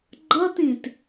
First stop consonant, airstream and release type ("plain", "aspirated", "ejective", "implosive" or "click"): click